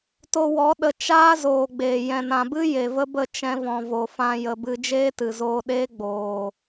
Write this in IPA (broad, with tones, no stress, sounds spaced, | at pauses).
t o˧ w ɔ˨˦ ɗ ə˧ t͡ʃ aː˦ z oː˨ ɡ͡b eː˨ j ɛ̃˨ n ã˨ b ɨ˦ j e˨ v ə˦ b ə˦˨ t͡ʃ ɛ̃˦ v ɔ̃˧ v o˧ f ã˧ j ə˨ b ɨ˧ d͡ʒ eː˦ t ɨ˨ z oː˧ ɗ eː˦ ɡ͡b oː˨